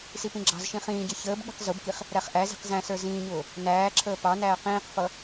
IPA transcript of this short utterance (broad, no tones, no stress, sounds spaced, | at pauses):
s i p ĩ ɡ͡ǁ ɑ̤ z ʃ ĩ χ ĩː ɟ ʌ ç əː b ɠ i̤ q z ʊ b k i χ | ɾ æ χ ʔ æ z i̤ q z æ̃ s ə˞ z ĩː ɲ ʊː | n æː ǁʰ əː p ɑ n æː q ĩː q f ʌ